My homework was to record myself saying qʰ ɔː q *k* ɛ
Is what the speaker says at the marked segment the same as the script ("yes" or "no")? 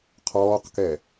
yes